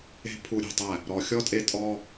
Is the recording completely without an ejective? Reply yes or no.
no